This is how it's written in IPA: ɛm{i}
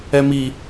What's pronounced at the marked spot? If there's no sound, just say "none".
i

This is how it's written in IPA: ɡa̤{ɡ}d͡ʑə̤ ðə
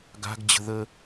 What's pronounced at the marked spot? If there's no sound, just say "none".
ɡ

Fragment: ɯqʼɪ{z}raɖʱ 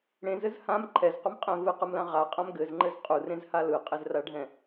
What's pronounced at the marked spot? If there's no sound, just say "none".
z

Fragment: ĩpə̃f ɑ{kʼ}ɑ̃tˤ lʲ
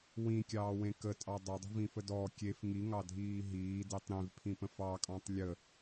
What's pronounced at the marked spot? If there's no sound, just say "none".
kʼ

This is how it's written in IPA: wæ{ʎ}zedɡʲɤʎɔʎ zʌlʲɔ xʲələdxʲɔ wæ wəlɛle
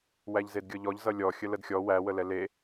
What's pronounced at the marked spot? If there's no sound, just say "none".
ʎ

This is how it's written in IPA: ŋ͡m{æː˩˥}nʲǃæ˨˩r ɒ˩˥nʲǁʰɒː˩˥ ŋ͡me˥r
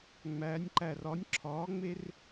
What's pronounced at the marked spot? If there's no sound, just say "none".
æː˩˧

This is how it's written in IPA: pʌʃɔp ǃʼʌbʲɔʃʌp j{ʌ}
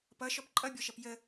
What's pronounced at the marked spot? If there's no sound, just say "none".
ə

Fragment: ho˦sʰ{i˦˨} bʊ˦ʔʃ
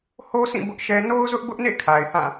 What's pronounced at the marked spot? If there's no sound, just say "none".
ĩ˦˨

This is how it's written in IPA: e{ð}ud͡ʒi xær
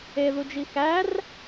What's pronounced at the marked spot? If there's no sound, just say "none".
ð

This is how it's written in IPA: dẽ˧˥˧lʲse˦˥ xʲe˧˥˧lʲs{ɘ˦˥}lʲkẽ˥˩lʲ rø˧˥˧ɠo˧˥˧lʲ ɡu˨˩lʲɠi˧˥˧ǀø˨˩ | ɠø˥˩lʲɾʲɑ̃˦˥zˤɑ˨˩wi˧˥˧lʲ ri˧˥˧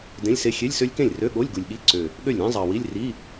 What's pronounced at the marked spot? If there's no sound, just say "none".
ø˦˥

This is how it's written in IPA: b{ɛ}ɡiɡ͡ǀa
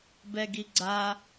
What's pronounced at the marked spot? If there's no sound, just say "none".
ɛ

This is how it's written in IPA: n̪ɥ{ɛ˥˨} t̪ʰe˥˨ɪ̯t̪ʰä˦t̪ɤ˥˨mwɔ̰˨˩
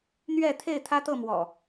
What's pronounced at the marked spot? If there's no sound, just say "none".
ɛ˥˨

